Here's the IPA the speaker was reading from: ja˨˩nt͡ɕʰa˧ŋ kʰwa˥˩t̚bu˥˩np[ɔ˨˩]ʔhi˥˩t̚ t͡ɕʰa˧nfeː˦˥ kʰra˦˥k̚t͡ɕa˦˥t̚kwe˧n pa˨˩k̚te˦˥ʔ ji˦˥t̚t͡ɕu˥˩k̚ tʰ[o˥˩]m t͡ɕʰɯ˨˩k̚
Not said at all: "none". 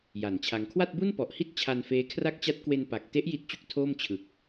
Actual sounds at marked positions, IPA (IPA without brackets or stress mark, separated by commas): ɔ˨˩, oː˥˩